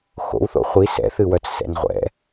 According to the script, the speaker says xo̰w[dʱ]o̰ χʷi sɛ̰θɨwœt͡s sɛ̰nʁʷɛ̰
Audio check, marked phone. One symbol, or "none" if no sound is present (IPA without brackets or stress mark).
θ